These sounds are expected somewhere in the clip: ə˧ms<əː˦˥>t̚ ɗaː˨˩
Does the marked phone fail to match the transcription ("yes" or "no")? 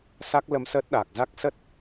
no